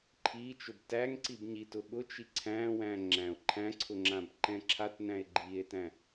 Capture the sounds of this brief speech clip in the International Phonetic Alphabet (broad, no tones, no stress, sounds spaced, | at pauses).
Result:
ǃʰ i t͡ʃ ʊ b t æ ŋ ǀ i b ɲ i t ʊ ɠ ʊ t͡ʃ i ǀʰ æ̃ w æ̃ ŋ͡ǁ æ̃ o̯ ǃʰ æ̃ ǀʰ ʊ ŋ͡ǁ ã b ǃ ɛ̃ ǁʰ a t n æ̃ e̯ ɡ͡ǃ i e̯ t æ̃